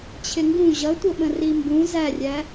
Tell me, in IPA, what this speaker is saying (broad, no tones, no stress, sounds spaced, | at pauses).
t͡ɕʰ ɪ ŋ ɡ ũ ʑ ʌ tʷ ə ɓ ə̃ r i m b ũ z æ rʲ æ